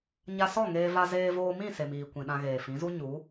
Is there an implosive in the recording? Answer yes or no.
yes